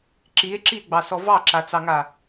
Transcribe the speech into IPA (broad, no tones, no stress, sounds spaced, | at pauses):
ǁ i e̯ ǁ i e̯ ɡ͡b ɑ s ɔ v ɑ ǁ a t͡s ɑ ŋ a